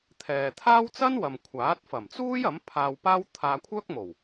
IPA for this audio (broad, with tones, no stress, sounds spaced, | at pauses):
t̪ʰ ɛː˨ t̪ʰ aː˥ w t͡s ɐ˥ n w ɐ˨ m kʷʰ aː˨˥ t̚ f ɐ˨˩ m t͡s uː˥ j ɐ˨˥ m pʰ aː˧ w p aː˥ w t̪ʰ aː˧ kʷʰ œː˥ k̚ m o˨˩ w